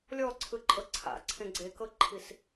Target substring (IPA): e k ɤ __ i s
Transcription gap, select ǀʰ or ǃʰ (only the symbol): ǃʰ